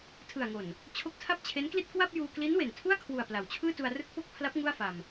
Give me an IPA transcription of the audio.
tʰ ɯ˨˩ a̯ ŋ o˨˩ n | t͡ɕʰ o˦˥ k̚ tʰ a˥˩ p̚ t͡ɕʰ e˦˥ n k l i˥˩ t̚ k w a˥˩ p̚ j uː˧ k l i˦˥ n w e˨˩ n tʰ u˥˩ a̯ kʰ w u˨˩ a̯ p l a˩˦ w t͡ɕʰ ɯː˥˩ t u˧ a̯ r ɯ˥˩ k̚ p o˥˩ k̚ pʰ l a˦˥ p̚ ŋ u˥˩ a̯ f a˧ m

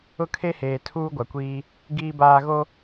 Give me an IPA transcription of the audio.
ʊ˦ kʰ e˦ h eː˨ tʰ uː˦ ɡʷ a˨ kʷ iː˦ | ɡ iː˦ b aː˦ ɣ o˦

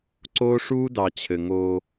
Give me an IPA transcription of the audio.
ǀ oː˦ ʂ uː˦ d ɑ˨ t͡ɕʰ ɘ˨ ŋ oː˦

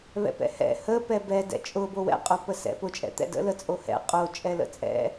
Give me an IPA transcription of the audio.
β ɛ̰ p ɛ̰ h ɛ̰ h ə p ɛ b ɛ d ɛ̰ t͡ʃʼ ʊ b o w ɛ̰ qʼ o p ə s ɛ̰ p ʊ t͡ʃʼ ɛ̰ t̪ ɛ̰ d ə̰ l ə t͡sʼ o h ɛ̰ qʼ o t͡ʃʼ ɛ l ə̰ t͡sʼ ɛ̰

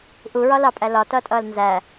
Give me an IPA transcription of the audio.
ʔ u ɹ ɒ l ɑ pʼ æ l ɒ t ʌː tʼ ʌː l n z æ

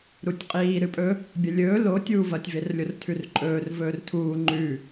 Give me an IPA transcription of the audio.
ɾ u tʲ qʼ iː ɾ ɨ pʼ ɵ | bʲ ɐ lʲ ɵː l o tʲ uː v ɐ tʲ v e r lʲ o r tʰ ʉ r ǃʼ ɵː r v ɵː r tʰ uː ŋ͡ǃ ʉ

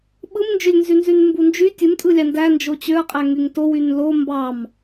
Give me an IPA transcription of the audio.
ɓ ɯ m n d͡ʒ ø lʲ n z y n z y n m b u n d͡ʒ y tʲ u m tʼ ɯ lʲ ɑ n d æ n d͡ʒ o t͡ɕ ø ɐ̯ qʼ æ ŋ y ŋ t o w y n l o m b ɑ m

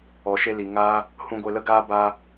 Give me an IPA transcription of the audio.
ɔ˨ ʃ e˧ l i˨ ŋ aː˦ | h ũ˧ ɡʷ e˧ l ə˦ ɡ aː˦ b aː˧

